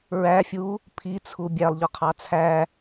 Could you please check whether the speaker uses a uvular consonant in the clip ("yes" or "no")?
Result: yes